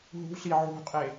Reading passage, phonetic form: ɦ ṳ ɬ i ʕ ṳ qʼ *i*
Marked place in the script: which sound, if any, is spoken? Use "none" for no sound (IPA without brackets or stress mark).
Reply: e